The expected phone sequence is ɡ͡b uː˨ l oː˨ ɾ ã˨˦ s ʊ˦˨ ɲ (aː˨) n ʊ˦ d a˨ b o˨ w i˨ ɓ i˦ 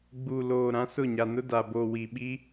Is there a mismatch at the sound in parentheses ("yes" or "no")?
yes